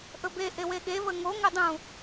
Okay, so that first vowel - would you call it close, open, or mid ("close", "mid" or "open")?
mid